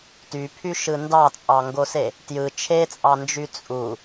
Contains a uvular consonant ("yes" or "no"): no